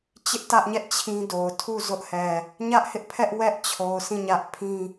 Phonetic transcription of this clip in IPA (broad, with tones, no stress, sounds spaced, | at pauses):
t͡ɕ ɪ˦ ʔ t ä˦ ʔ ɲ ɛ˦ ʔ t͡ɕʰ ĩ˦ d o˨ ʊ̯ tʰ u˦˨ z ʊ˦ ʔ h ɛ˨ | ɲ ä˦ ʔ h ɪ˦ ʔ pʰ ɛ˦ ʔ w ɛ˦ ʔ t͡ɕʰ o˨ ʊ̯ sʰ ĩ˦˨ ɲ ä˦ ʔ pʰ ĩ˦